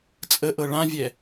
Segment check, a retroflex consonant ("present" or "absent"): present